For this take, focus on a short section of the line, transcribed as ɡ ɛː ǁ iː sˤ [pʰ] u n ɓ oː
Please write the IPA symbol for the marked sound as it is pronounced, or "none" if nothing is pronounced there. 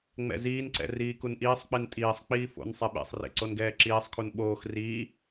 kʰ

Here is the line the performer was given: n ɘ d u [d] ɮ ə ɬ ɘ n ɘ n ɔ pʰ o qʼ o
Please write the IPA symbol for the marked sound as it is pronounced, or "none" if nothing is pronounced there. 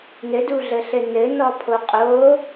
none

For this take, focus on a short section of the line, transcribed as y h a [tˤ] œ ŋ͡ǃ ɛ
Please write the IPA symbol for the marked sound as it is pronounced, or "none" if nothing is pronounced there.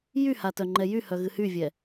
t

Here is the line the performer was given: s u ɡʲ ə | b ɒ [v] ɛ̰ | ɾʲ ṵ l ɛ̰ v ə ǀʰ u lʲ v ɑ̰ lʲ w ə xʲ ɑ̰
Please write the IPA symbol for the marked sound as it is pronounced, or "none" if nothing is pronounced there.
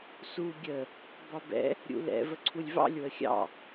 b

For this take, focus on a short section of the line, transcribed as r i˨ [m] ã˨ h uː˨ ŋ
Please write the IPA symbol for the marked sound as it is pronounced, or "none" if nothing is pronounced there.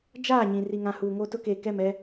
ŋ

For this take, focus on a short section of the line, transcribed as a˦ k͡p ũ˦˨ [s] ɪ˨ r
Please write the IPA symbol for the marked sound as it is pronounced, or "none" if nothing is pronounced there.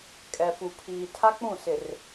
s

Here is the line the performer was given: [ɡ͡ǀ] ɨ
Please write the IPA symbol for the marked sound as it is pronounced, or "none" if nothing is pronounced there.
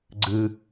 ɡ͡ǀ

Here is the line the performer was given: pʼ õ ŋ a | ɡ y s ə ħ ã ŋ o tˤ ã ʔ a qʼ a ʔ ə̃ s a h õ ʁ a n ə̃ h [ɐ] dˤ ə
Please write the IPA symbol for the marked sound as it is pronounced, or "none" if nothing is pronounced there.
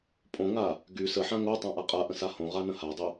a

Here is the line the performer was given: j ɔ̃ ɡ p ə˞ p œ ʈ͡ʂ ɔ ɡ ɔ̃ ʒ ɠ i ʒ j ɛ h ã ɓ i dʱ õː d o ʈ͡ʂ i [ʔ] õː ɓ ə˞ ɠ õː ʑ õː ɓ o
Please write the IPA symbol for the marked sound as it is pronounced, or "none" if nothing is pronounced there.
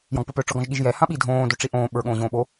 ʔ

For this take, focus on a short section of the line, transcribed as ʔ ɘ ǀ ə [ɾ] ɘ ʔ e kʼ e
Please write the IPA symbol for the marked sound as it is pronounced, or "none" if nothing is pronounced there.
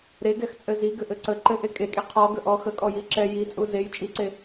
ǃ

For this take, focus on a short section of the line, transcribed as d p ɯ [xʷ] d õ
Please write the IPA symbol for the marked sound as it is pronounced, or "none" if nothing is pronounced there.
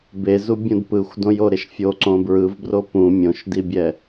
xʷ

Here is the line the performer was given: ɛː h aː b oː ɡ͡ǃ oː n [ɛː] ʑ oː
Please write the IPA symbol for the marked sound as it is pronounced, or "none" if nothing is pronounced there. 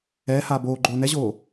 ɛ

